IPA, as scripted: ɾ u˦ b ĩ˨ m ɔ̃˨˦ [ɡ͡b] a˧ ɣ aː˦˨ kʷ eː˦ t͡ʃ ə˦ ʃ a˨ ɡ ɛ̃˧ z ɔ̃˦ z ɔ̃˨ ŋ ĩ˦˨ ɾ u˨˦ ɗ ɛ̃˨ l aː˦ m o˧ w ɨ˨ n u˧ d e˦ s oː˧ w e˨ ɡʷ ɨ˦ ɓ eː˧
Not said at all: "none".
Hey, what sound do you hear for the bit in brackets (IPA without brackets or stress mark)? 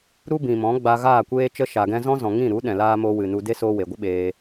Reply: ɡ͡b